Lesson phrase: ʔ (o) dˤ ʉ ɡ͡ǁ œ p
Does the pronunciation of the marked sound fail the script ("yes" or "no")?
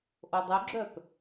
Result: no